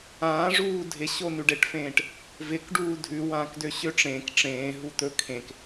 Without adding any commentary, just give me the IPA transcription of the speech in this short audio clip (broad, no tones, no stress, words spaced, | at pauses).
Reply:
ãː ʐuːdʱɪ ɕonʉɖeʈfẽːʈ | vɪk ɖuːdʱʉ wãːkdøɕøʈ͡ʂẽːk ʈ͡ʂẽː ɦut̪ɵ kʰẽk